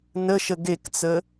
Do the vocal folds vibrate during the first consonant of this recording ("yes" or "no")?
yes